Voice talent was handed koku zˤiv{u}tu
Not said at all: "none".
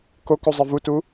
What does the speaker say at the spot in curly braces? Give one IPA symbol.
u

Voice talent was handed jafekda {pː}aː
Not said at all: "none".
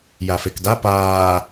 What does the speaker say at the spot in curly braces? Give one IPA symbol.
p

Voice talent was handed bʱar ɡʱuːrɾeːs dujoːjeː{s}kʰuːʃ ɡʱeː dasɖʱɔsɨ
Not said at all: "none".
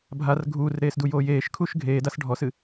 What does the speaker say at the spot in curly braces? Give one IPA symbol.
ʃ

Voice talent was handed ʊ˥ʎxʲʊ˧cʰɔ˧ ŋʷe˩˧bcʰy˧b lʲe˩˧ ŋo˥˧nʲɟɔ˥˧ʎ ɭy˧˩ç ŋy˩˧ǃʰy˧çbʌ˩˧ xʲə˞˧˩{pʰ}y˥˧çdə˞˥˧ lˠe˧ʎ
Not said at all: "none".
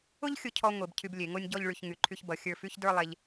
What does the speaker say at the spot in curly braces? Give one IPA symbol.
f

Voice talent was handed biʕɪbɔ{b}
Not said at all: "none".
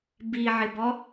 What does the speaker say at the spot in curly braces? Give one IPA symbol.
none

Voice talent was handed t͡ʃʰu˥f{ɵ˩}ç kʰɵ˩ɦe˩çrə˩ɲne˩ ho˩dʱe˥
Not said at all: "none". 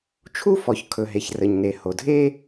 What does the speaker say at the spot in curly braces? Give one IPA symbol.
ɔ˩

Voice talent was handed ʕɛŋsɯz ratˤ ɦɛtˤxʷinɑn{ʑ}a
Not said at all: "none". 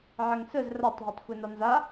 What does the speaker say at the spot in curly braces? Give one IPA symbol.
z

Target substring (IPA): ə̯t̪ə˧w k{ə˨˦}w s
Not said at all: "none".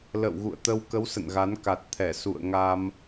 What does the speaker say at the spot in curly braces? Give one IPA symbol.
ə˨˦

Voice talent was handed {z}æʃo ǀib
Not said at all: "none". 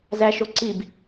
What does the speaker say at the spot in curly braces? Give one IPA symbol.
z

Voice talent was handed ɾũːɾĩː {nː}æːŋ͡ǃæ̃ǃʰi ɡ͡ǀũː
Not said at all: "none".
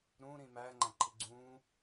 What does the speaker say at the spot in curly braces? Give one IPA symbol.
m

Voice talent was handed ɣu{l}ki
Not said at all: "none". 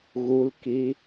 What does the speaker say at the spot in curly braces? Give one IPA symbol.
l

